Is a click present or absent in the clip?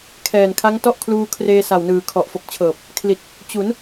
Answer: absent